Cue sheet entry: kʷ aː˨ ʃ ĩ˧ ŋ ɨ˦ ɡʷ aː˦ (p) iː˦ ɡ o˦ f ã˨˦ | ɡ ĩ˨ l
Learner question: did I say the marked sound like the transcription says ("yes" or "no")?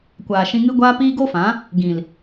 yes